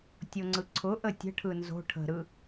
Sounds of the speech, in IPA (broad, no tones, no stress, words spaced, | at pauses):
tʲoŋ͡ǀɯǀʰʊʔə tʲə̤ʈʰɯ nzo̤ ʈʰə̤ɾɯ